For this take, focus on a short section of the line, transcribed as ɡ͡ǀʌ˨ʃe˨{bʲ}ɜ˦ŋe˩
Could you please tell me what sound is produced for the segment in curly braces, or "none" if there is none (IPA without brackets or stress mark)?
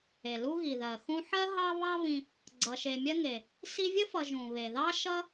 mʲ